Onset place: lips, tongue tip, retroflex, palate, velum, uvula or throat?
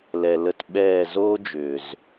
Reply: tongue tip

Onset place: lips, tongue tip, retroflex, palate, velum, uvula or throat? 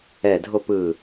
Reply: tongue tip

